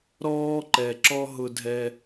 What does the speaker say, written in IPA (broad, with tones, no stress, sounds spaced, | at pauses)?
ɾ ɔː˦ ǃ ɛ˨ ǁ ɔ˦ ɦ ʊ˦ dʱ ɛ˦